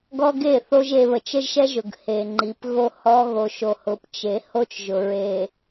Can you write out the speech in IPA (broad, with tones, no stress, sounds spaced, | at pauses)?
ɡ ɔ˦ ɡ e˦˨ θ o˦ ʒ e˨ β ə˨ t͡ʃ ə˦ ʒ ʃ ɛ˦ ʒ ʊ˨ ɡ h e˨ ŋ͡ǃ i˨˦ p ɣ o˦ h ɔ˦ ɣ o˨ ʃ o˨ h ʊ˨˦ p t͡ʃ e˨˦ h o˦ t͡ʃ ʒ ʊ˨ ɹ e˨